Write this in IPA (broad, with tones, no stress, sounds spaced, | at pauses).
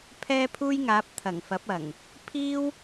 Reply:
pʰ ɛː˥ pʰ uː˥ j ŋ aː˨˥ p̚ t̪ʰ ɐ˨˩ ŋ f ɐ˨˥ p̚ ɐ˨˩ ŋ | pʰ iː˥ w